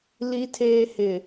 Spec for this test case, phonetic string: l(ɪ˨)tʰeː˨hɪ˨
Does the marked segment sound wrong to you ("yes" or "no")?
yes